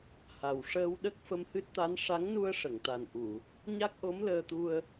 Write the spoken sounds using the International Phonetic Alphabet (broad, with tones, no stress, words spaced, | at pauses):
ha˨˩wʂəː˧w ɗə˦˥k̚fə˧mhɨ˦˥t̚t̪a˧˥n ʂa˧˥ŋnu˧ə̯ʂə˨˩˨ŋt̪a˨˩n ʔu˨˩˨ | ɲa˦˥k̚ʔo˧˥mləː˧t̪u˧ə̯